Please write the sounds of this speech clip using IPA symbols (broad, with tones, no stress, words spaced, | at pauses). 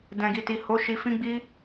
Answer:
dɛ̃˨ɡi˨ti˨ho˨˦ ʃi˧fĩ˦ɡ͡bi˦